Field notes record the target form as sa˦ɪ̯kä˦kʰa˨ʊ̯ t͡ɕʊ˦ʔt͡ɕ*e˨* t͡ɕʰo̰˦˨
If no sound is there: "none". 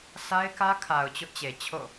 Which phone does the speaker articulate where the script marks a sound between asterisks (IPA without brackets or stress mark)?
e˨